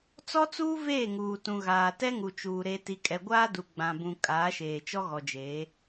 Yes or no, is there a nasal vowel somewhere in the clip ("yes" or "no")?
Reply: yes